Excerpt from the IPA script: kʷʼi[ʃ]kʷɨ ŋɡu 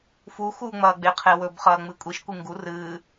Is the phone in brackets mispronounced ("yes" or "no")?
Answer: no